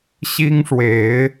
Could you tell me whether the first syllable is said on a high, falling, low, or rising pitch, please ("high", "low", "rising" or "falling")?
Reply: high